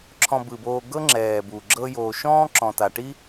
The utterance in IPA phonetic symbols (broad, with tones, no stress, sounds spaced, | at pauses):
ǁʰ ɔ̃˨ b ɯ˩ b oː˨ ɡ ɤ˦ ŋ͡ǁ ɛː˩ b u˩ ɡ͡ǁ ɤ˦ j oː˨ ʃ ɔ̃ː˥ ǁ ɔ̃˨ t a˨ ʈ i˥